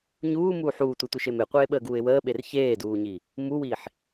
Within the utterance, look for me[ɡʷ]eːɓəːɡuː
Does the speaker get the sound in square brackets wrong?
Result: yes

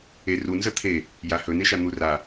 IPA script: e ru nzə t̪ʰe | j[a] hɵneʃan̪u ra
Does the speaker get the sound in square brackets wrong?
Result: no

